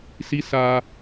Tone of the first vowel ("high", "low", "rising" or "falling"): rising